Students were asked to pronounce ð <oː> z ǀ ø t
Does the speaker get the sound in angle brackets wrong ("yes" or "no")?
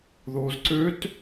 no